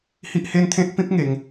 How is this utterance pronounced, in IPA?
h i˦ ʔ h e˦ n t̪ʰ ẽ˦ t̚ p ĩ˦ p̚ ŋ e˧ ŋ

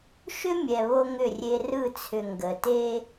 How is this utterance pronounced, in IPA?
ʃ ʏ˦ mʲ ɛ˨ β o˦ ŋ ʏ˦˨ rʲ e˦ r ɯ˦˨ t͡sʰ ʏ˨ ŋ ɡ ə˨ t e˦

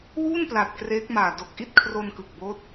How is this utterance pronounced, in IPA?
w uː˥˩ n p l a˨˩ t̚ k r eː˦˥ k̚ m aː˨˩ d o˨˩ k̚ ʔ i˥˩ t̚ kʰ r o˧ n k ɯ˨˩ k̚ b oː˦˥ t̚

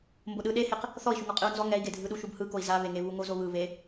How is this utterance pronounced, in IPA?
m b o ɗ ɯ ɗ e h e q | θ ɔ i̯ ʃ u ŋ ɔ qʼ ɯ u̯ n z ɔ ŋ ɛ i̯ ɡ e dʱ ɯ ɗ u ʃ u b h ɯ k o i̯ z a β e ŋ e β u ŋ o z o β ɯ β e

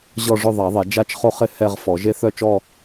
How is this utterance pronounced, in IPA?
ʑ ɔ˥˧ ʐ ʊ˥˧ ðˤ a˨˩˦ ðˤ ɛ˨˩˦ d͡ʒ a˥˧ t͡ʃ χ o˥˧ χ ɪ˥˧ h ɛ˥˧ ʁ f ɔ˨˩˦ ʒ e˥˧ θ œ˥˧ t͡ʃ ɔ˥˧

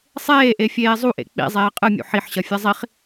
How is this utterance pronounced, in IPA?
sˤ eː ʔ e fʲ eː zˤ u ʔ ḛ k͡p ḭ zˤ eː qʼ ɨ mʲ ṵ ħ i ħ ɕ ɐ fʲ ɘ zˤ i χ

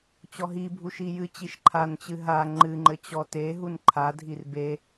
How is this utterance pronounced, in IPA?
t͡ɕ ɔ ɦ i bʱ u ʃ i j ɨ t͡ɕ i ʃ ǃʰ a n t͡ɕ ɨ ɦ a ŋ͡ǃ ɨ ŋ͡ǃ ɘ t͡ɕ ɔ t e ɦ u n ǃʰ a dʱ i r b e

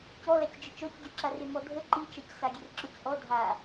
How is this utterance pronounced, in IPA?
c ɔ l a c d͡ʒ ə t͡ʃ ɔ c ɟ ø ǁ a r e m ɔ dʱ ə ǃ i t͡ʃ a c s a ɡʲ e r ǁ ɔ c ʔ ɔ dʱ a

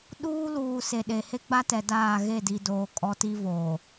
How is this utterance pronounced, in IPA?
ɗ uː˦ l uː˨ s e˨ ɗ e˨ h e˦ ɡ͡b a˦ t ɛ˨ d aː˦˨ ɣ e˦˨ d i˨ d oː˨ kʼ ɔ˦ t i˦ v oː˨

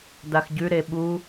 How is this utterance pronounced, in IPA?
d a x ɟ ʉ ɾ e ɓ u

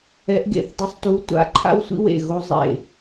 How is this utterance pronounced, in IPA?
ɛ˨˥ ʔ ɡ ḛ˥˩ θ dˤ u˨˥ sˤ t u˨˥ tʷ a̰˨˥ ǃʰ a̰˦ w sʷ ḭ˦ w ḛ˥˩ ɣ o˦ zˤ ḛ˥˩

